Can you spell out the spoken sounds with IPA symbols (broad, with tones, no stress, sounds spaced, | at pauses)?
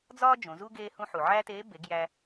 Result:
d͡z ɒː˥ d͡ʒ õ˩˧ z u˥ ɡ eː˥ h ũ˥ ħ u˩ ʕ æː˥ t eː˧˥ b e˩˧ ɡ j æ˧